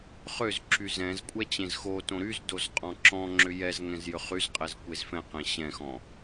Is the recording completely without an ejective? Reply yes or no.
no